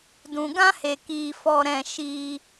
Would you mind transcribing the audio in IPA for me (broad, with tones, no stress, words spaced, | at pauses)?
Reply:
dũ˨ɡã˦he˨ kiː˨fɔ˨ɾɛ̃˨ ʃiː˧